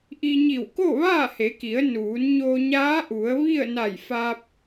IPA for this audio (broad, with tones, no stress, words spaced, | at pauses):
ʔi˧ɲi˧˩w ko˥˨ʋaː˥˨he˩˧ki˩˧ə̯ nuː˩˧n ɲo˧ɲaː˧˥ʔu˩˧ə̯ ʋi˥˨ə̯ na˧˩jfaː˧p̚